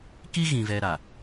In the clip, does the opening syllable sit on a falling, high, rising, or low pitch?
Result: high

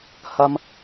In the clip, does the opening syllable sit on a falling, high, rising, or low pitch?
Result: high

